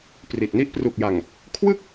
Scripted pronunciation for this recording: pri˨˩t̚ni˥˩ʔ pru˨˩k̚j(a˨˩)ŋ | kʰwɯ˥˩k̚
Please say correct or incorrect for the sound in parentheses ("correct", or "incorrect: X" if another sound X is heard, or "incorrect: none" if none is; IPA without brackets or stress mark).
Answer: correct